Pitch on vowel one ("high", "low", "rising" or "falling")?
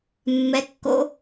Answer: rising